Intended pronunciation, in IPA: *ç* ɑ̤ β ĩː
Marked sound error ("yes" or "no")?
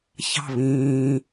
no